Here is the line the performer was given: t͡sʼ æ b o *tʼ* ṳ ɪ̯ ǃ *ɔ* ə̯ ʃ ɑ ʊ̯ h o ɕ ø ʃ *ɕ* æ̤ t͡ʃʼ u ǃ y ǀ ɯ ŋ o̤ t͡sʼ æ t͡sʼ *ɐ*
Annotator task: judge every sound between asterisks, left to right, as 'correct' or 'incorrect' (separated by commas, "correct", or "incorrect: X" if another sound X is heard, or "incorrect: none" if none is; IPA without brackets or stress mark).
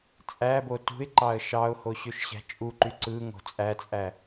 incorrect: t, incorrect: ɑ, correct, incorrect: æ